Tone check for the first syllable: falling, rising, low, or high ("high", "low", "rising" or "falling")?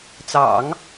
low